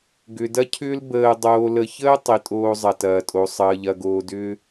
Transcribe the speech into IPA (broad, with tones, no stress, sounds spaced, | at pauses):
ɡ ʏ˧ d ɐ˥ cʰ ʏː˥ l b əː˧ dˤ oː˧ l ə˧ ç əː˥ tˤ i˧ tʼ oː˥ zˤ ɐ˧ t ɐː˧ tʼ o˧ sˤ əː˧ ʎ ɐ˧ ɡ oː˧ d ʏː˥